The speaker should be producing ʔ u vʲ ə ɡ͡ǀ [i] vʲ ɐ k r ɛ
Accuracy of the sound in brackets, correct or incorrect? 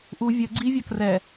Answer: correct